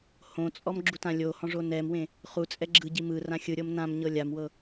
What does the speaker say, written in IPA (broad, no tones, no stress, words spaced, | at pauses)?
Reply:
hõt͡sʼɔm ɡ͡ǁutãlʲohɔ̃ ʐonɛmwẽ | χut͡sʼɛ ɡ͡ǁɯɟi mɯ rãxʲɯɾʲɤm nãmɲɤ lʲamwɤ